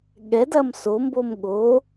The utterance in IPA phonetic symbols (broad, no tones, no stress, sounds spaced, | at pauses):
ɠ ɛ d ɐ m s o m b o m ɠ o